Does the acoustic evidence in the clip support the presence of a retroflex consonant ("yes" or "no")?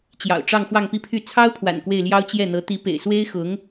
yes